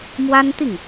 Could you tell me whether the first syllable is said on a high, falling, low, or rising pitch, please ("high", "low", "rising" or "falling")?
high